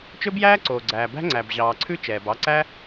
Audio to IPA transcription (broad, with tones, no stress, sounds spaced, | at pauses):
t͡ʃ ɵ˦ b j æː˦ ǀ oː˨ ɡ͡ǀ æː˨ b æ̤˦ ŋ͡ǀ æ˨ b ʑ ɑː˨ ǀʰ ʉ˦ t͡ʃ ɛː˨ b ɑ˧ ǀ æ˦